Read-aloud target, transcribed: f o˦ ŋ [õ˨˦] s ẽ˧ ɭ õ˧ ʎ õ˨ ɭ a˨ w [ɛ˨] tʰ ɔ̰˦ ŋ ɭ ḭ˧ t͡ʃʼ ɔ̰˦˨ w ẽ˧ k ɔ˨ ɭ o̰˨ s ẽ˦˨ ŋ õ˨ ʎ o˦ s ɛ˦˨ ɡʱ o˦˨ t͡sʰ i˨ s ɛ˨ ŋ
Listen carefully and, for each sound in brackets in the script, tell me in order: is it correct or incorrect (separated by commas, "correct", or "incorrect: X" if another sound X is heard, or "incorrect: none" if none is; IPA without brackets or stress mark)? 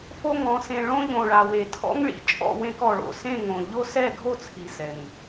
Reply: incorrect: ɔ̃˨˦, incorrect: e˨